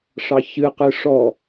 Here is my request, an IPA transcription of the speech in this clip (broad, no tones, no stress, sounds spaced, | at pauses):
ʂ ɑ ç ɨ q ɨ ʂ ɔ